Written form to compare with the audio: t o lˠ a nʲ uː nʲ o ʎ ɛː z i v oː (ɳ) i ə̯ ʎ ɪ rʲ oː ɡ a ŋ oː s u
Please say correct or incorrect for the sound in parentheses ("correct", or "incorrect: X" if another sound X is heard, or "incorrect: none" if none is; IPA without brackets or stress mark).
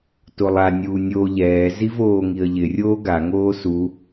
incorrect: ŋ